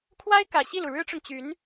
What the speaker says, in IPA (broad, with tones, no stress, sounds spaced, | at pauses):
kʰ w a˥ ɪ̯ k ä˨˩ ɕ i˥˩ l u˩ ɻ ɻ̩˥ ʈ͡ʂ ʊ˨ ŋ t͡ɕ y˧˥ n